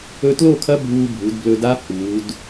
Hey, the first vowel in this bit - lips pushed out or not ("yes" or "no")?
yes